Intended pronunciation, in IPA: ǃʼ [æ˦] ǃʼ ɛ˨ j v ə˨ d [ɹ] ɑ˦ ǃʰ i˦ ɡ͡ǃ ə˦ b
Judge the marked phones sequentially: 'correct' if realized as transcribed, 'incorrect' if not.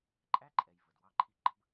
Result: correct, incorrect: w

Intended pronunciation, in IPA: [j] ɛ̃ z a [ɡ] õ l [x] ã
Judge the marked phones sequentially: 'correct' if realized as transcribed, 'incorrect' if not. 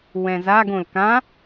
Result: incorrect: w, correct, incorrect: k

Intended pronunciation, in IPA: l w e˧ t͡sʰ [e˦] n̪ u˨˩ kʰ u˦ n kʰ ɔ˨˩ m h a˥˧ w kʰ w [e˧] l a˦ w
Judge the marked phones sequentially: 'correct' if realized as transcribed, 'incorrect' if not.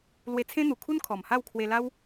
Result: incorrect: ẽ˦, correct

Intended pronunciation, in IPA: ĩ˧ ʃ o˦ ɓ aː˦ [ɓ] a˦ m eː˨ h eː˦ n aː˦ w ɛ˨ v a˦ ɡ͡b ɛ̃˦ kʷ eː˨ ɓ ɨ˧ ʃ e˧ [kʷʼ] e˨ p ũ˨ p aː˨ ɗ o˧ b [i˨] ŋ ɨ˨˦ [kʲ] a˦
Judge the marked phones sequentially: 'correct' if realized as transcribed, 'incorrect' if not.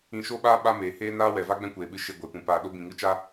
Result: correct, incorrect: ɡʷ, incorrect: ĩ˨, incorrect: t͡ʃ

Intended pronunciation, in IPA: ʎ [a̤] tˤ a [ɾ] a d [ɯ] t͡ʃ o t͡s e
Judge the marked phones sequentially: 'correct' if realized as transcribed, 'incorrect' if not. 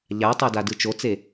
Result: incorrect: a, incorrect: d, correct

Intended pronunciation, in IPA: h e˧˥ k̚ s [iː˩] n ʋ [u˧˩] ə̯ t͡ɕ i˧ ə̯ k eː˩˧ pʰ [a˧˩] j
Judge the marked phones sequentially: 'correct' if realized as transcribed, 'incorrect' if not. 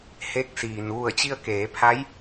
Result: correct, correct, incorrect: a˧˥

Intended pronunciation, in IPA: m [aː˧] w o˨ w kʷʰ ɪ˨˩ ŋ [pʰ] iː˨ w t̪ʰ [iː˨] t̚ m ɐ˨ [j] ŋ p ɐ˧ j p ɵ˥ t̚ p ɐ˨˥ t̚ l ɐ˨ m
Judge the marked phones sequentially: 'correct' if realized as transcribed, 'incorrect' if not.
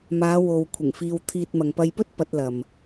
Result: incorrect: aː˨˧, incorrect: f, correct, incorrect: none

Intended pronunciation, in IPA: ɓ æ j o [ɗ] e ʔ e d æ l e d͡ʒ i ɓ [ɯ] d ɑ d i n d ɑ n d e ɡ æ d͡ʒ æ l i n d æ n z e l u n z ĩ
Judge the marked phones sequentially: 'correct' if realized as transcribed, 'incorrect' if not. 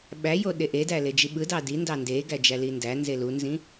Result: correct, correct

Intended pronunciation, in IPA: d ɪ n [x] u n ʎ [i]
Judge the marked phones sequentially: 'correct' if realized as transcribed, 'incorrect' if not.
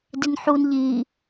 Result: incorrect: ħ, correct

